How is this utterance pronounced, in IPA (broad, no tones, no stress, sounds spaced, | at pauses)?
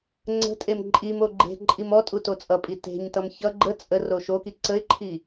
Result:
ŋ͡ǀ ə̤ tʼ e m ǃʼ i m o ɡ͡ǃ e̤ ǃʼ i m ɔ tʼ u t o t͡sʼ ʌ pʼ i t e̤ ɲ t ʌ m ç ʌ ɡ͡ǃ ə t͡sʼ ə r o ʃ o k i ǀ ə ɪ̯ ǃʰ i